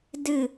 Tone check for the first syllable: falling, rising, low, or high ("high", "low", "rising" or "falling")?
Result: falling